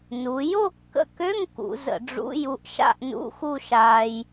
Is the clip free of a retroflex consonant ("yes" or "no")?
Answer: no